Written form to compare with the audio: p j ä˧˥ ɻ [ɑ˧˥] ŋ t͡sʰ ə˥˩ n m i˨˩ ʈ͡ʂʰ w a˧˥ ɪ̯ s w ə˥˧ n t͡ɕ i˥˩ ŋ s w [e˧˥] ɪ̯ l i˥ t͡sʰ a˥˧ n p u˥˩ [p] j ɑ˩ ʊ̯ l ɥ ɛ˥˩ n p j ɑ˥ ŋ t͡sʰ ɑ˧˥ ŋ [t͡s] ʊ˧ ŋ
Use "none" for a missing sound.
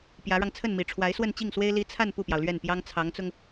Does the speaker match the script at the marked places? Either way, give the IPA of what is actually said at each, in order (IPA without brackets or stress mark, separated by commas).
ɑ˧, e˥, p, t͡s